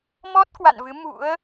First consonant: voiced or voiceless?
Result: voiced